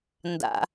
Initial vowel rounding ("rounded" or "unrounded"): unrounded